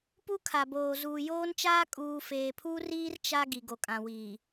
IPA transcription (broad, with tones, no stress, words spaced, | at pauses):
pu˦kʰa˨boː˨ zuː˨joː˦nt͡ʃaː˦ kʼuː˨feː˨pʰuː˦riː˦r t͡ʃa˦ ɡi˨ɡo˨kʼã˨wiː˨